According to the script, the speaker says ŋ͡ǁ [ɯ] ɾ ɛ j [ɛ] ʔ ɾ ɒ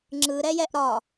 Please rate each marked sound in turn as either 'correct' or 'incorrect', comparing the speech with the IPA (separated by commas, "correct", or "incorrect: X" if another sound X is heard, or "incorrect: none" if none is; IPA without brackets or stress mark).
correct, correct